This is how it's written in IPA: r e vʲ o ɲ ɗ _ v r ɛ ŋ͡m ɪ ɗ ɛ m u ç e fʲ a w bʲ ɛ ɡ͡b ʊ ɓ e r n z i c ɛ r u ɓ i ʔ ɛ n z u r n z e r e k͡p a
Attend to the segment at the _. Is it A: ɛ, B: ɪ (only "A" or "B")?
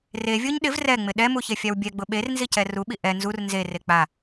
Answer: B